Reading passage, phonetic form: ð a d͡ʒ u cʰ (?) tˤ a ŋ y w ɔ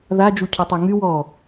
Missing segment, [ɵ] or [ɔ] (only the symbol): ɔ